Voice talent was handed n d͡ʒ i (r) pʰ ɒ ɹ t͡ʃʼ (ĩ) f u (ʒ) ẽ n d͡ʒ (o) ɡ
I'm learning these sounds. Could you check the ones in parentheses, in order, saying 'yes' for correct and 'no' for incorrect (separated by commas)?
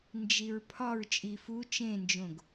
no, no, no, no